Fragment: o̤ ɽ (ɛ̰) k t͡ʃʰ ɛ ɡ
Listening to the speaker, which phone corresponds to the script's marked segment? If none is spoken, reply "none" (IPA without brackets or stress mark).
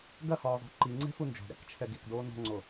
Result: ɛ̰